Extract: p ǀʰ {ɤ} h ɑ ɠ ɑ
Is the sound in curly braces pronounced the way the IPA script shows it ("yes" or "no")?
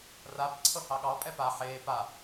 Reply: yes